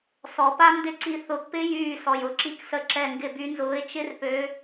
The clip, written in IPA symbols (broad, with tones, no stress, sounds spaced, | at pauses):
s ɔ˨˩˦ p a˦˥ n d ɪ˦˥ ǀ i˧˩ θ ʊ˨˩˦ ɡ p ɪ˦˥ j yː˧˩ s ɔ˩ j ʊ˨˩˦ ǁ i˧˩ k s ə˨˦ ǁ ɛ˧˩ ŋ ɡ ɪ˧˩ b y˨˦ n z ʊː˨˦ ɪ̯ t͡ʃ ɪ˦˥ r p ø˨˦